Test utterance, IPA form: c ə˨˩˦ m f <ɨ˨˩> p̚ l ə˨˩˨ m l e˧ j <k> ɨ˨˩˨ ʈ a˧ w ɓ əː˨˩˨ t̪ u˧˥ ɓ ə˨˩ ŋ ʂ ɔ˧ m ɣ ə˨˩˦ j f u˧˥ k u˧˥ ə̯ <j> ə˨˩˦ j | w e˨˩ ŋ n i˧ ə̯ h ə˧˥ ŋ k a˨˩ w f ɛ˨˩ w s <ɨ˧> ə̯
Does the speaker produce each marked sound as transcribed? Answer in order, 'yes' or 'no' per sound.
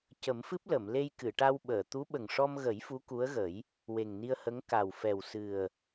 no, yes, no, no

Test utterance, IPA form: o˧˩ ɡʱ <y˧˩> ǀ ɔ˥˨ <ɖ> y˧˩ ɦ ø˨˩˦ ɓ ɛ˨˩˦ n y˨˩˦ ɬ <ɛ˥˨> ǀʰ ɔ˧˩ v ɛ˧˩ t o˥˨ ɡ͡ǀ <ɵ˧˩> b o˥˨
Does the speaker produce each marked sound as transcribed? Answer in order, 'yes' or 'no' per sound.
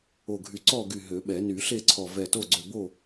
yes, no, no, no

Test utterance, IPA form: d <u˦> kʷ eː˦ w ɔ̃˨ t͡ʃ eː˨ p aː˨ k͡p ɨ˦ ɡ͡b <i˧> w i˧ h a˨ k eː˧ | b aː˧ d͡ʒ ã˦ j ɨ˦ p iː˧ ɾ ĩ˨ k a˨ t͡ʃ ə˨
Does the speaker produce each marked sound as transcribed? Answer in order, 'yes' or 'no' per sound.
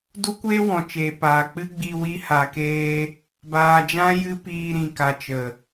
yes, yes

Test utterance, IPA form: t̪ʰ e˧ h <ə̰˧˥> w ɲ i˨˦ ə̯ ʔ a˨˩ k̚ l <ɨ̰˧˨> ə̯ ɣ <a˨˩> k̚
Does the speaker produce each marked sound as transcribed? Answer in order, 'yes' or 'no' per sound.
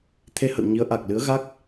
no, no, no

